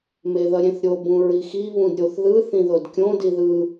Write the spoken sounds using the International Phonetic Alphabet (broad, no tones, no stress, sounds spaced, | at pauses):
m e ð ʌ ɾʲ ẽ θ ɾʲ o b ũ ɹ i x i β ũ d ɾʲ o θ ð ɯ θ ĩ ð o d kʲ õ d i ð ɯ